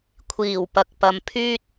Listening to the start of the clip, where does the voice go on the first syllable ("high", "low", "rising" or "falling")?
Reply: low